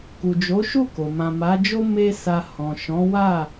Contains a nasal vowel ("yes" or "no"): yes